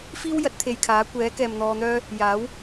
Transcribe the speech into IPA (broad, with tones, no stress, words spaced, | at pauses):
fiː˥wjɐ˨˥t̚ t̪ʰe˨jkʰaː˨˥ kʷɛː˨˥kɛː˨mn̪ɔː˧n̪œː˥ | jaː˨˥w